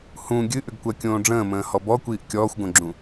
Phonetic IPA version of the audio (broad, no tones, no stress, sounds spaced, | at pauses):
h ũ ɡʲ ɨ ʔ ʏ ɡ kʷ ɜ kʲ õː ɖ͡ʐ ə̃ː m ə̃ː h ɔ b ɔ kʷ iː ʔ kʲ ɔː xʷ ɡ õ ɡ͡ǁ ũ